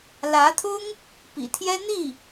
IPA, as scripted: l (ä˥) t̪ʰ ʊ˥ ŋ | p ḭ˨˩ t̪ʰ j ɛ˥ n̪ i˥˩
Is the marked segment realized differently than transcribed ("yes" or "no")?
yes